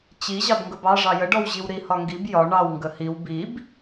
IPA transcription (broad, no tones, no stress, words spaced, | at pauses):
t͡ɕi ʑɑbŋɡəbɑ ʐɑjə ɖɔwʑiwɾi hɒŋɡib jɒ ɳɑw ŋɡəhiw bib